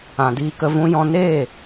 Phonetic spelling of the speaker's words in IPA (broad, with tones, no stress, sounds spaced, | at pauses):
ã˨ d iː˧ k ə˧ v ũ˧ j ɔ̃˧ n e˦˨